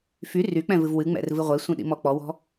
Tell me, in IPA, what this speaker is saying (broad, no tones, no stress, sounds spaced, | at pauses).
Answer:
f y r y k͡p ɛ̃ v ɨ v w ɨ ŋ͡m ɛ̰ r v ɨ ʁʷ e sʷ ĩ ɗ ḭ m ɔ k͡p ɔ w ɔ̤